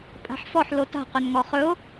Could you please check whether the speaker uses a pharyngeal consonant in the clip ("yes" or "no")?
yes